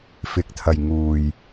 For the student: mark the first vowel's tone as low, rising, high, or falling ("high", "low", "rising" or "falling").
rising